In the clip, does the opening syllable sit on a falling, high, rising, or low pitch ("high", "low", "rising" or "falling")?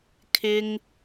high